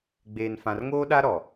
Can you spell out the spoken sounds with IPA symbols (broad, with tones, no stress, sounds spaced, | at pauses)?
ɡ͡b eː˨ n f ã˨ r ŋ oː˦ ɗ a˦ ɾ ɔ˨